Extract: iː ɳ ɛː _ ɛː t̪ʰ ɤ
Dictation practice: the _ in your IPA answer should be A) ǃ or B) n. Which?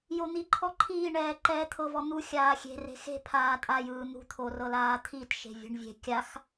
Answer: A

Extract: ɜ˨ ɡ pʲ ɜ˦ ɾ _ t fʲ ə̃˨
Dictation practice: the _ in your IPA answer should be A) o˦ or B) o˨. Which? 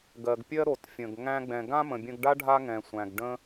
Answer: B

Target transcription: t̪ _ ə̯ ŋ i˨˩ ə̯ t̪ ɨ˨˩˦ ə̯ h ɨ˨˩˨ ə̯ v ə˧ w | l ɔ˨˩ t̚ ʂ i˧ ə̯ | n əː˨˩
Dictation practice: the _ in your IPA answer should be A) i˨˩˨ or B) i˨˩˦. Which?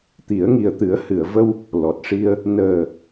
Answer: B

